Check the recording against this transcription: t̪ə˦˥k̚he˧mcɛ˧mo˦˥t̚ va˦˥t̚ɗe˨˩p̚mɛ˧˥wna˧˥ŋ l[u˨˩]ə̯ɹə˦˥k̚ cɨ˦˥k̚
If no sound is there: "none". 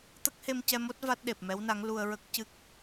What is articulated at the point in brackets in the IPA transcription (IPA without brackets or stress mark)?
u˧